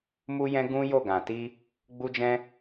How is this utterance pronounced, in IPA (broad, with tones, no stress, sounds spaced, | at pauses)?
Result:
m u˦ j ɛ̃˦ ɡ ũ˦ j o˦˨ ɡ ã˨ t i˧ | ɡ͡b u˦ d͡ʒ ɛ̃˦